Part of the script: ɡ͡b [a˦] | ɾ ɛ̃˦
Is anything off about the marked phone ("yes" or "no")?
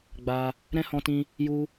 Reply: yes